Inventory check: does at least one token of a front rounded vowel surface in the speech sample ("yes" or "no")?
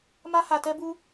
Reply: no